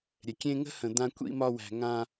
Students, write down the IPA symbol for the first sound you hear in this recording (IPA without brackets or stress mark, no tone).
ɾʲ